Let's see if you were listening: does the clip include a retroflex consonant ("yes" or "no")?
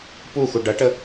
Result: yes